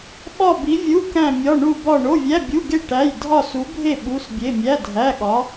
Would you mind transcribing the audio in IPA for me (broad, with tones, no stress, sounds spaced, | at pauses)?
ɓ ɒ˥˧ b i˧˥ vʲ u˧˥˧ k æ̃˥˧ mʲ ɒ˧˥˧ ɳ u˥˧ b ɒ˥˧ ɳ o˧˥˧ vʲ æ˧˥˧ bʲ u˧˥˧ ɡ e˥˧ ʈ æ˧˥˧ j dʱ ɒ˥˧ s u˧˥ bʱ e˥˧ ɓ u˧˥˧ s bʲ e˧˥˧ mʲ æ˧˥˧ dʱ æ˧˥˧ ɠ ɒ˧˥